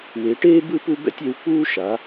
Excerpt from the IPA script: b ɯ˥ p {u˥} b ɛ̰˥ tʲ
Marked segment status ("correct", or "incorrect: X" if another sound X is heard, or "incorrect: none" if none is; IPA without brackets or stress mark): correct